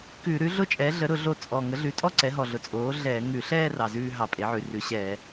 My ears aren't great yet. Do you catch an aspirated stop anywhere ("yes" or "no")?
no